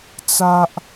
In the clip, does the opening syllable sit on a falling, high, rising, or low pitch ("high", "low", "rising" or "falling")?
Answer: low